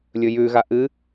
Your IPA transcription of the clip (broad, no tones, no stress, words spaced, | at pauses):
lʲɵjʉɣa ʔɨ